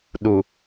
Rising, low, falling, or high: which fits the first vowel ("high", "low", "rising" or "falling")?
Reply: low